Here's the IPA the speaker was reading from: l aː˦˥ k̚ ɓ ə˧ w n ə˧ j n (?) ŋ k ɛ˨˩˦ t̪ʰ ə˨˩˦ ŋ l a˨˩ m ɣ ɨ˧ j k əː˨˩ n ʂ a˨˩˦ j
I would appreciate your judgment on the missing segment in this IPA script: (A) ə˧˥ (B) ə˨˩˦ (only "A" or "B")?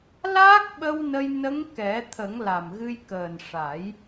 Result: A